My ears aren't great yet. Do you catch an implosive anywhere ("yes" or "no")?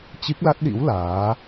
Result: yes